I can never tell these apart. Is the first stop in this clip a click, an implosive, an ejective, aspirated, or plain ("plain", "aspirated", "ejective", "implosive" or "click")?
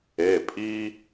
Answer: ejective